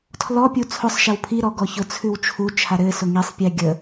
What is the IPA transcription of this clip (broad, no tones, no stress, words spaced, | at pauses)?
tʰlɔ pʲut͡sʰʊsˤʃɛw pʰiɾɔ ɡɔçʊt͡sʰʉw t͡ʃʰut͡ʃʰa ɾɘ sʊŋisˤpʲɛ ɡʲə